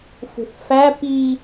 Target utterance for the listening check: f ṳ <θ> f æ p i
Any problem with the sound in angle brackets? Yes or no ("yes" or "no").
no